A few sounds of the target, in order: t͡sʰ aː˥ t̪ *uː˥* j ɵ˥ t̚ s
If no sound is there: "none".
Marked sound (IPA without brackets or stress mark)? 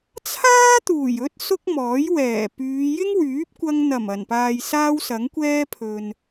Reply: uː˨˩